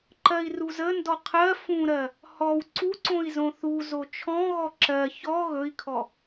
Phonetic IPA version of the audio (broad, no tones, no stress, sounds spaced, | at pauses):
ǃ ɜ i̯ r u z ə n d ɔ qʰ ɜ f ũ ɾ ɜ | h ɔ w ǀ u ǀ õ i̯ z õ θ u z o t͡ʃʰ ɔ̃ ɣ ɔ ǁ ɜ ç ɔ ɣ ɵ i̯ kʰ ɔ